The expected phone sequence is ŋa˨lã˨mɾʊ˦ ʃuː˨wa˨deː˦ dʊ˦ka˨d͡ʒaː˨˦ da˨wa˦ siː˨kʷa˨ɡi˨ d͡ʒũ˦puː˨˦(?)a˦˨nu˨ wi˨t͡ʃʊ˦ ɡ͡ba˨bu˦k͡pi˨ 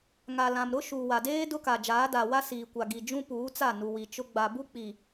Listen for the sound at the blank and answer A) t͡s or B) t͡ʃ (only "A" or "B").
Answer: A